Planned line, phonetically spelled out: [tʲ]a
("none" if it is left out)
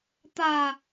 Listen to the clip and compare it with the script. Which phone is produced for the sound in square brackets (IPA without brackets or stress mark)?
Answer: t̪